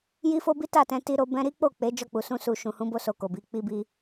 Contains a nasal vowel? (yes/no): yes